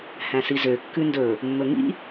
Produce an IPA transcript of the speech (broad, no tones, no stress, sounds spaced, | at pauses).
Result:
h æ̃ s i z ø kː ʉ n d ɵ | mː ɵ ŋ ḭ